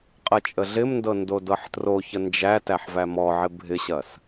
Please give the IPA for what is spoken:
qʼ ɐ t͡ʃʼ ə ɮ ɪ m n d ɤ n d o d ɤ ħ t r o ç ə n d͡ʒ æ t æ ħ v æ m ɔ ʕ ɪ bʱ ɪ ɕ ɐ s

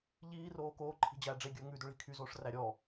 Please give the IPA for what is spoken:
ʎ iː r oː k oː ǃʰ i̤ d͡ʑ æː ɖ͡ʐ e ɡʲ ɵː ŋ ʉ d ɵ ɭ i̤ kʰ y z oː ʂ r æ ɾʲ ɔː

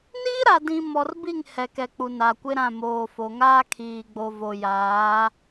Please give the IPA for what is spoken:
n iː˦ ɾ a˨ d ĩ˨ m ɔ˨ r b i˦˨ ŋ h ɛ˨ k ɛ˨ k͡p u˨ n a˨ kʷ ɪ˦ ɾ ã˦˨ m oː˨ f o˨ ŋ aː˦ kʰ iː˨ ɡ͡b o˨ v o˨ j aː˨˦

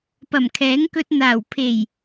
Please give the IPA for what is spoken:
p ɐ˨˩ m kʰ ɛː˨˥ ŋ k ɵ˧ t̚ n̪ aː˨˩ w pʰ e˨˩ j

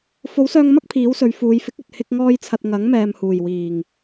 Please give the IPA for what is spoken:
f o˨˥ w s œː˧ ŋ m ɐ˥ k̚ pʰ iː˨˥ w s ɵ˨˧ ɥ f uː˨˧ j f ɪ˨˥ k̚ ɵ˨ t̚ h ɪ˧ k̚ ŋ ɔː˧ j t͡sʰ ɐ˨ t̚ ŋ ɐ˨˥ ŋ m ɛː˨ m h uː˨˩ j w iː˨˩ ŋ

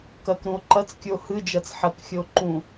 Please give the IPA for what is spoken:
k ɐ k ɾ ũ o̯ ǃ ɐ t͡s kʲ ɵ o̯ h ɨ d͡ʒ ɐ t͡s ħ ɐ k xʲ ɵ o̯ ǃ ũ

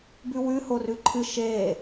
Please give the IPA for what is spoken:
b ʉ w ʉ h o r ʉ ǃʰ ɨ ʃ e

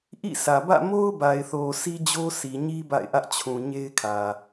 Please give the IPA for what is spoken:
ʔ ḭ˦˨ s ä˨ b ä̰˦˨ m o˦ ʊ̯ b a˨ ɪ̯ θ o˨ s i˦ d͡ʑ o˦ s i˨ ɲ i˦ b a̰˦˨ ɪ̯ ʔ ä˦ ʔ t͡ɕʰ ũ˨ ɲ e˦ ɪ̯ kʰ ä˨

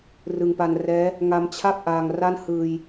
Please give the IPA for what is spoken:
r ɯ˧ ŋ p a˧ n r ɛː˦˥ | ŋ a˧ m t͡ɕʰ a˥˩ p̚ ʔ aː˧ ŋ r a˥˩ n h ɯː˧ j

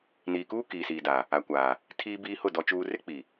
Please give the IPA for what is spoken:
n iː˨ k uː˦ k iː˨ s iː˨ d a˨ | a˨ kʷ aː˨ | tʰ iː˦ b iː˦ h ʊ˦˨ d ɔ˨ t͡ʃ uː˨ r ɪ˦ k͡p i˨

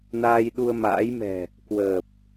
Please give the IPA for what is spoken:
n aː˧ j ɗ u˧ ə̯ m a̰ː˧˥ j m ɛ̤˨˩ | k w əː˨˩ p̚

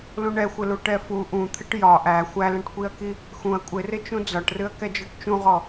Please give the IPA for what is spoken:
l ũ ɳ ɛ xʷ ɪ l u ʈ ɛ f u ʔ ũ t̪ʰ ɪ ʈ j ɒ ʔ æ xʷ æ l ɛ̃ ʈ kʷ i ɐ̯ k i | x ũ ɐ̯ kʷʼ ɪ r ɪ t͡ʃ ũ d͡z ɒ ʈ r ɨ ɐ̯ k ɛ d͡ʒ ɔ ʈ t͡ʃ ũ ʁ ɔ

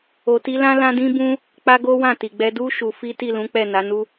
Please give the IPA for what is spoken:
o˧ t i˦ l ã˦ l ã˦ d ĩ˦ b ũ˦ | k͡p a˦ ɡ o˦ w ã˦˨ t i˨ ɡ͡b ɛ˧ d u˦ ʃ u˧ f i˦ t i˦˨ l ũ˨˦ k͡p ɛ˦˨ n a˨˦ n u˦

